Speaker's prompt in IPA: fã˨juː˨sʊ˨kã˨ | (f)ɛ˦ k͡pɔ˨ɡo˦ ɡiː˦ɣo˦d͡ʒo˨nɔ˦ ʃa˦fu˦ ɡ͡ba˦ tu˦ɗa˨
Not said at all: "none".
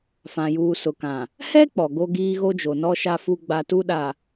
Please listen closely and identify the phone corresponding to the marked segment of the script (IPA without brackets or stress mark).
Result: h